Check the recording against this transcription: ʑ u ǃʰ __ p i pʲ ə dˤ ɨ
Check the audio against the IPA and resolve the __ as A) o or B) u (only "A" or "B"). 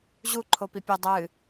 A